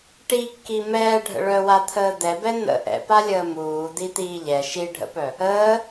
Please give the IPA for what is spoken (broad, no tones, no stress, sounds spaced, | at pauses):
ʈ i kː i m ɛː ɖʱ ə̰ ɭ œ w a t̪ʰ əː d̪ ɛ b ɛ n̪ ə̰ ʔ ɛ̰ p a lʲ əː m uː d̪ i t̪ iː ʎ ɛ ʃ i ɖʱ ə̰ p œ | əː